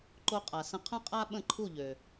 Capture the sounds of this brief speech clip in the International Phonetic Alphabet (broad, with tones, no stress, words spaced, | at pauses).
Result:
ǃo˧qʼa˩sə̃˧ qʰə̃˥qʼa˥ ɓə̃˥˩ǃʰu˥˩ʎø˩